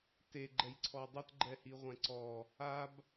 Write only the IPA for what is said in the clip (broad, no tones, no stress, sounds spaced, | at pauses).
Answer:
t e ɡ͡ǃ ɛ j ǀʰ ɔ dˤ e t ɡ͡ǃ ɛ h i ʁʷ ɛ̃ ǀ ɔ | a b